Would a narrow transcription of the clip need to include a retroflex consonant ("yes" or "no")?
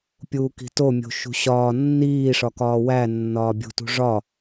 yes